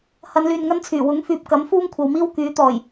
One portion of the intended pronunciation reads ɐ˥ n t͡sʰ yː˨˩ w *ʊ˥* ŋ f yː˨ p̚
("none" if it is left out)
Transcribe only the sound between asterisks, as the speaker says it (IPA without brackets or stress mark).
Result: ʊ˨˥